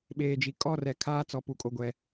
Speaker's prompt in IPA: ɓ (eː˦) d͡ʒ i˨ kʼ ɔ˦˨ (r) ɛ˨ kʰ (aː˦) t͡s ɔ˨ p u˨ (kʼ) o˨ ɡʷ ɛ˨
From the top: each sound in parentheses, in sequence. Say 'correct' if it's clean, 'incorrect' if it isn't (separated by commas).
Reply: incorrect, correct, correct, correct